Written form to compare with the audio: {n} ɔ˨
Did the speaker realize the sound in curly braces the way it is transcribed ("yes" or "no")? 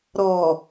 no